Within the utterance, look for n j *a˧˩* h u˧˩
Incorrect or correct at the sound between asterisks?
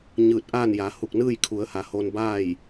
incorrect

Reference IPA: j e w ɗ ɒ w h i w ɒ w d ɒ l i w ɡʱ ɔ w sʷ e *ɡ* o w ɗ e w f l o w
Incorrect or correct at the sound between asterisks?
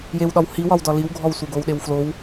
correct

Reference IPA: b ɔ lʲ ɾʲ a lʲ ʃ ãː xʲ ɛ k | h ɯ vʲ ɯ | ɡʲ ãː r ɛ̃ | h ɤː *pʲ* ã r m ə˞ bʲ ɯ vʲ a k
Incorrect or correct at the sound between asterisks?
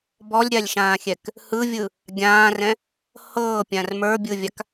correct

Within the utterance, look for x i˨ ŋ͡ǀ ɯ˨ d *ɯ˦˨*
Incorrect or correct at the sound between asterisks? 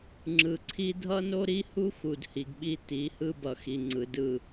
correct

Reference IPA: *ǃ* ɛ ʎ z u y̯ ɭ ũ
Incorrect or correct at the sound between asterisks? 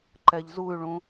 correct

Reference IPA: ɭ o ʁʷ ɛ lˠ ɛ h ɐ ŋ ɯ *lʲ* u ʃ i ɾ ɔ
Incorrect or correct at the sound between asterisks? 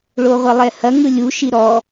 correct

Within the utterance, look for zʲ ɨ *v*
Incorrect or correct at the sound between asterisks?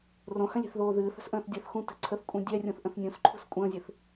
incorrect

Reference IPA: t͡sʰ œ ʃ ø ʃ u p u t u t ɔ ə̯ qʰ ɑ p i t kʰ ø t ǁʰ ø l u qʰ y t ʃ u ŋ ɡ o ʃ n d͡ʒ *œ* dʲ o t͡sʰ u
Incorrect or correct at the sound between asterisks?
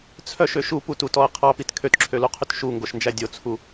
incorrect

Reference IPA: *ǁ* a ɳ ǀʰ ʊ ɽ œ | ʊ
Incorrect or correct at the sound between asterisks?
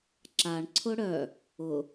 correct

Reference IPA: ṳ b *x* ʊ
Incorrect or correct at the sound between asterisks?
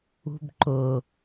incorrect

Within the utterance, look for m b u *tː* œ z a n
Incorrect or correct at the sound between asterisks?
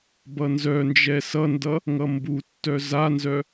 correct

